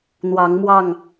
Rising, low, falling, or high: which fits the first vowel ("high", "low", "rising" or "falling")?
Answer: rising